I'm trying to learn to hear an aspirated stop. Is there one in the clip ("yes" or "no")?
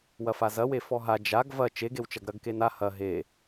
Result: no